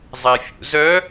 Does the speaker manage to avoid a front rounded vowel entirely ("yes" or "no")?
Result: no